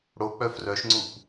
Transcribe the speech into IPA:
ɽok͡pœ frœʃŋ͡ǀup

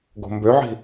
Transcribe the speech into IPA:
ɡo̤mbøʕi̤

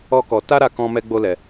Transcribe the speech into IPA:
ɔ˦kɔ˧ ta˦ɾa˧ kɔ̃˧mɛ˧ ɡ͡bo˦lɛ˧

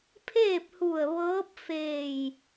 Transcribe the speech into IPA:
pʰeː˥˨p̚hu˧˩ə̯ ʋɤː˧˥p̚feː˧˩j

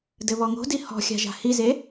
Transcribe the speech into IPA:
dɘβɔŋo̤di hɔ̤xʲa̤ʒa̤ hize

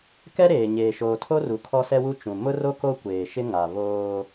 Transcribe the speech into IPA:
kɛ˦ɾeː˨ ɲeː˨ʃoː˨tʰo˦ru˨ kʰɔ˦sɛ˦wu˦ t͡ʃũ˨ mʊ˦ro˦ ko˦kʷeː˨ʃɪ˦ ŋa˨ βoː˦

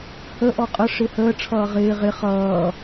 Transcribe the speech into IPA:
hə ʔɔqʼə ʂɪhəː ʈ͡ʂʰʌːʁɪː ʁɪ χʌː

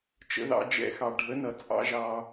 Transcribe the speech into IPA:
t͡ʃə̰˧ðɑ̰˧ d͡ʒɛ̰˧ xɑ˨ɖʱə˨˦nʌ˨ t͡sʼɑ̰˦ʒɑ˧

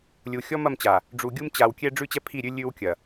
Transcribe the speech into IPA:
lʲu˨ xʲɔ˦mɐ˦˨mt͡ɕa˨ | ɖ͡ʐu˨ɡʲu˦mt͡ɕa˨wkʲɛ˦ ɖ͡ʐʉ˦t͡ɕɛ˦ pʰi˦˨ɾʲʉ˦ lʲʉ˦w kʲɐ˨

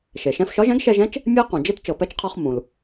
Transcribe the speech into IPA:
ʃe˩ʃɛ̃˧fʃɒ˧˥ʒɛ̃˧˥ɡ ʃɛ˧ʒɛ̃˧˥t͡ʃ | mʲɛ˥ qũ˩d͡ʒe˥t t͡ʃɤ˩pɛ˧˥t͡ʃqʰɒ˧χ mũ˩l

